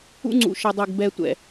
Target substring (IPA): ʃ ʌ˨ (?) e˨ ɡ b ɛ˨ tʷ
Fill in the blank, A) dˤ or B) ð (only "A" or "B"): A